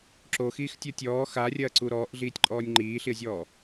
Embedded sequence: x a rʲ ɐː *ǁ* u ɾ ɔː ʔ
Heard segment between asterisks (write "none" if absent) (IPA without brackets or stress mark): ǀ